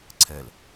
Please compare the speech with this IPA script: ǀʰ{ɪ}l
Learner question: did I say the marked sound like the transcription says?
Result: no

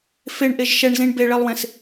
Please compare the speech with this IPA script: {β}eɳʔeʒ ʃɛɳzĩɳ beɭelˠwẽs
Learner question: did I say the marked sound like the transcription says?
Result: no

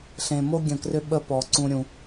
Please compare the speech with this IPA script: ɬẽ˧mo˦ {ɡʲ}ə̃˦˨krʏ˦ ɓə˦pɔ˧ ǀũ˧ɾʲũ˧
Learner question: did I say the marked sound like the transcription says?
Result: yes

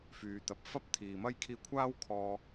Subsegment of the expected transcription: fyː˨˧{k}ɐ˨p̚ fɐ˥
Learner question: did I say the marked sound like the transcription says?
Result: no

